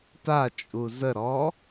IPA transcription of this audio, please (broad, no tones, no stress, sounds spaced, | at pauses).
t a t͡ʃʼ u z ə ɾ ɔː